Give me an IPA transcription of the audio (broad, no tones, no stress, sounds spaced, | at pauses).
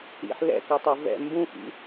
ḭ ħ l ɛ̰ k ɤ tˤ ɤ v ɛ̰ m b ũ x ḭ